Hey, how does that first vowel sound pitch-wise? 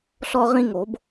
high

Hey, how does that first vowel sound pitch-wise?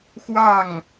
falling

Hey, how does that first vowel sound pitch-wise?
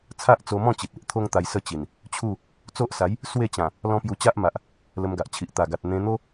high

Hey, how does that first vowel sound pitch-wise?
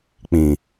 low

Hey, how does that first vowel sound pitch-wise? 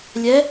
rising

